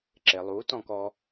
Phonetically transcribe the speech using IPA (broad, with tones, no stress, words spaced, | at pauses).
ǁe˩lˠu˩˥tɔ̃˥˨kɔ˧